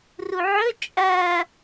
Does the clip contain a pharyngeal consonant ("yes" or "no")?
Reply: yes